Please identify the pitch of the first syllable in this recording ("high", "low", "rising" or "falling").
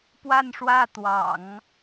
falling